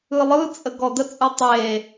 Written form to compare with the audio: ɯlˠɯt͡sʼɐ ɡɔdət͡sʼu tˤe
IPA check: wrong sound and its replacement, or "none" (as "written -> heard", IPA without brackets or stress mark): ɐ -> ə